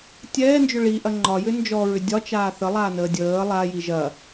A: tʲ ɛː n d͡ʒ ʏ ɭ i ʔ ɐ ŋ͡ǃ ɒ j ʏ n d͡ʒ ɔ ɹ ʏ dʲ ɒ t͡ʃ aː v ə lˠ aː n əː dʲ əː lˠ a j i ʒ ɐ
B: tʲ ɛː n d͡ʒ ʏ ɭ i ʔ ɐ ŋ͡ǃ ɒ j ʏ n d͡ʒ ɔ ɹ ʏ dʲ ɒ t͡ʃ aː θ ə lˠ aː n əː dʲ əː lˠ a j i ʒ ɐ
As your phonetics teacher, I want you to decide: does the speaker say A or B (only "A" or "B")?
B